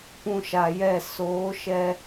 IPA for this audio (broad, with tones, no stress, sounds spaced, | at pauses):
p ũ˧ ʃ a˨ j ɛ˦˨ s oː˨˦ ʃ ɛ˦